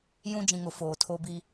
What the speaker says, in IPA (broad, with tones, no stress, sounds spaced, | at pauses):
j ũ˦ d͡ʒ ĩ˨ ŋ ʊ˨ f oː˨ tʰ o˦ b i˦